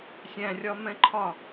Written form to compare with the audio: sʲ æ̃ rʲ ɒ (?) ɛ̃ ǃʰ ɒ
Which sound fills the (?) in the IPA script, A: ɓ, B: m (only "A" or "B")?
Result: B